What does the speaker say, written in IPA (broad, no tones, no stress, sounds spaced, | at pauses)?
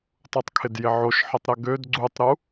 tˤ u tˤ kʰ ɪ d j ɪ ʕ o ʃ ħ ə tˤ ɾ ə ɡ ø d ɡ͡ǀ u tˤ ɾ u